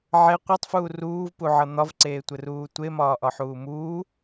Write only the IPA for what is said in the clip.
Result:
ʕe qʷetˤfuː ruːvpuʕʌ n̪ɒvǀeːtʷɘruː tʷemɒːʔɒħuː muː

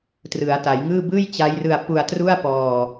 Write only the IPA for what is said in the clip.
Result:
trɯ˩˦a̯ta˩˦jŋɯː˥˩ bɯː˥˩jt͡ɕa˦˥jrɯ˧a̯ pu˧a̯tru˥˩a̯ pɔː˧

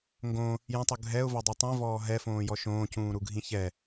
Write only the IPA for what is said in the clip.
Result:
ŋɡõ | jõtˤu ɡʱɛʊ̯vadˤɛ tˤĩvɔː ɦɛfõːjɔ ʃõːcũːɾuɡʱĩ çɛ

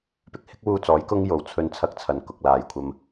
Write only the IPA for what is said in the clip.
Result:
pɪ˧k̚hɪ˥k̚wuː˧t͡sɔː˨˥j kʊ˥ŋ jo˨˩wt͡sʰɵ˧n t͡sʰɐ˥k̚t͡sʰɐ˨˩nkʊ˨k̚ laː˨jkʷʰɐ˧m

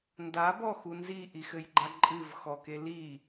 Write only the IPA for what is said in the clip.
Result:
ndabɔxu nziʔixɘjɡ͡ǃa ǃʼɨvxɔke li

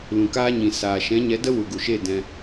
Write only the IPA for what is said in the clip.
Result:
lũ˨kaː˧ɲĩ˨ saː˨ʃɛ̃˨˦ɲɛ˨˦ də˦wu˨ɡu˨ʃe˦˨ dɛ̃˧

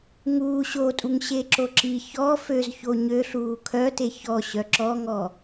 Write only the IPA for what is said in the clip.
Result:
ŋuː ɕotʼuŋ ɕeǁoǁi çɔ føz çoɲøɬuː kʰœte çɔ ɕœǁɔŋɔ

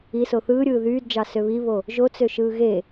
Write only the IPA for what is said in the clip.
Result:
iso θɯːɾʲɯː ðyːdd͡ʒɑ søβiβo | ʒot͡søʃɯː ɣe

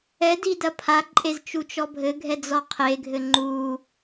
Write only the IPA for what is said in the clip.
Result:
ɛdi dɐpʰaǃʼez t͡ʃut͡ʃɔbʱɘɡʱɛ d͡zɔqʰeɡʱɘ ŋ͡ǃu

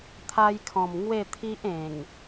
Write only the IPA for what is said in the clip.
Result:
t̪ʰa˧jkʰɔ̃˨˩m ŋwe˥˧t̪ʰi˦ʔ ẽ˨˩ŋ

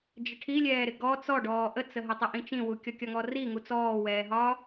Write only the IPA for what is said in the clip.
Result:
d͡ʒəʈʰilʲɛːɾɪ ɡɔ t͡sɔɖɔː ʔət͡səɦə tˤəʔĩt͡ʃĩwu kʲɔkʲɒŋɔri ŋut͡sɔːwɛːɦɒː

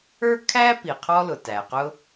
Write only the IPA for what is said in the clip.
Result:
ə˞˥ kʰæ˥pi˩ qʰɔ˥lʊ˩tæ˩qʊ˥

